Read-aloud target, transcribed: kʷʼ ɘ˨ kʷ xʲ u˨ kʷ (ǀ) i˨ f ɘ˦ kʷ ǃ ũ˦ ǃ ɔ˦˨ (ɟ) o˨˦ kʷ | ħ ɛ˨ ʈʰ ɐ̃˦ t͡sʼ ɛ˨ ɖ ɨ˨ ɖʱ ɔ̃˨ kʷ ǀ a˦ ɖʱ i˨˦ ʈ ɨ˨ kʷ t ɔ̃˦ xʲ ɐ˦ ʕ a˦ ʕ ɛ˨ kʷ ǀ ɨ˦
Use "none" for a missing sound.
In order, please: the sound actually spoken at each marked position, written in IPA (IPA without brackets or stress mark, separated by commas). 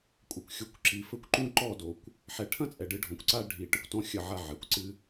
ǁ, d